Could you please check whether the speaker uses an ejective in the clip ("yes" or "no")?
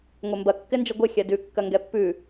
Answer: no